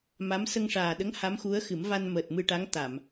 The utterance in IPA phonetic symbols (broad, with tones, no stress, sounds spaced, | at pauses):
m a˧˥ m s ə˧ ŋ ʂ aː˨˩ ɗ ə˧˥ ŋ h a˧˥ m x u˧˥ ə̯ x ɨ˨˩˦ m v a˧ n m əː˨˩ t̚ m ɨ˧ ʈ a˧˥ ŋ t̪ a˨˩˨ m